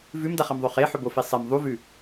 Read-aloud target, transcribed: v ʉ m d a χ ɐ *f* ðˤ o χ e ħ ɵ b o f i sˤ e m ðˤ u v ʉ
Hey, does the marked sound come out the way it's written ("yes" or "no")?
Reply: no